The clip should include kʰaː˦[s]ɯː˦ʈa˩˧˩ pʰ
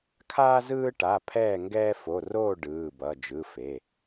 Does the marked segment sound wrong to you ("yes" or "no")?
yes